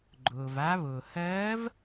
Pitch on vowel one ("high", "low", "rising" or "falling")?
low